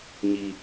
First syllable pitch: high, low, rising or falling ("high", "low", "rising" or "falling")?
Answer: low